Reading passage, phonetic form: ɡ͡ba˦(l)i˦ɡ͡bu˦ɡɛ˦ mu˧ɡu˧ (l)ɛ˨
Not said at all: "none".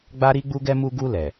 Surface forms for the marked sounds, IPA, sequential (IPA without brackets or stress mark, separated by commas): ɾ, l